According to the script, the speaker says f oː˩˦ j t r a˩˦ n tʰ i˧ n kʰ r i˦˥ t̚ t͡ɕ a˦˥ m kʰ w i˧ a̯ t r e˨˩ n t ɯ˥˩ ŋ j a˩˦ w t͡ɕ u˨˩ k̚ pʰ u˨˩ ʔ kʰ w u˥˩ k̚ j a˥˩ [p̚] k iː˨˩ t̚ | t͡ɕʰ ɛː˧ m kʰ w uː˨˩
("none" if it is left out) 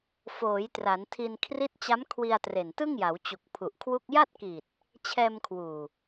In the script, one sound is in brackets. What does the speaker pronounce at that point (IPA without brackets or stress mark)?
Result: t̚